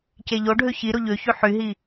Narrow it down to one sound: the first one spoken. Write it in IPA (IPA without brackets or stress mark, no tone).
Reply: c